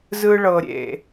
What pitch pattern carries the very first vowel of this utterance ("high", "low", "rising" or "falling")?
low